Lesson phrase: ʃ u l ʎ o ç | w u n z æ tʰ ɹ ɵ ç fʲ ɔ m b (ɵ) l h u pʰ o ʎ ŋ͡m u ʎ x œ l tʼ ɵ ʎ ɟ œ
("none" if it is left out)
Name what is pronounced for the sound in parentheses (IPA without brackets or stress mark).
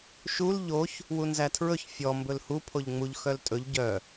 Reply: ɵ